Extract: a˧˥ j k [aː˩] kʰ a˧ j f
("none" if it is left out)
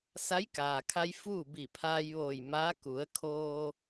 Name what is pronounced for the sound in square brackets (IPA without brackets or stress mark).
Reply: aː˩